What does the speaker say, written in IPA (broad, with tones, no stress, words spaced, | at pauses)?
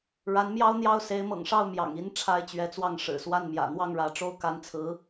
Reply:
ɻa˧˥nmjɑ˥ʊ̯n̪jɑ˥˩ʊ̯ se˧˥ɪ̯mɤ̰˨˩ŋʂɑ˥˩ʊ̯mjɑ̰˨˩ŋ i˧˥n ʈ͡ʂʰa˥ɪ̯t͡ɕɥɛ˧˥t͡swɑ˥˩ŋ ʂɻ̩˨˩swa˥˩nmjä̰˨˩ n̪wɑ˥˩ŋɻä˧˥ʈ͡ʂo˥ʊ̯ ka˧˥nt͡sʰɹ̩˧˥